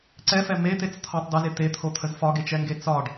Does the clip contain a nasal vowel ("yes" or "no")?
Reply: no